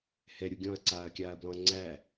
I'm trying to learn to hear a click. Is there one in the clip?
yes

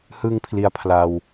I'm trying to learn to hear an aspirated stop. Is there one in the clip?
yes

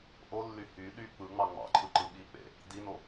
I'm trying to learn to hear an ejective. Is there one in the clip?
no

